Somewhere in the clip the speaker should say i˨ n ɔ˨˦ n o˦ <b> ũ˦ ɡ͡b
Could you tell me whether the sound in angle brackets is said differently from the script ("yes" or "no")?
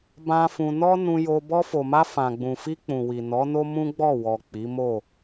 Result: yes